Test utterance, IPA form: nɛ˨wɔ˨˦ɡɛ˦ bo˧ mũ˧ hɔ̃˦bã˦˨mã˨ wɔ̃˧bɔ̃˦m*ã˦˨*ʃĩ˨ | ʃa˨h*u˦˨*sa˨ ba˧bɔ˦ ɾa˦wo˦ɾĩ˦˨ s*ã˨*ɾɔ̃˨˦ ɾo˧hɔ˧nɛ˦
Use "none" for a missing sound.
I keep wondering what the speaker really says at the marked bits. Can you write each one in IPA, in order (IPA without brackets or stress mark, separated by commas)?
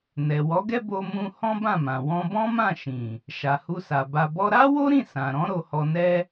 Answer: ã˦˨, u˧, ã˨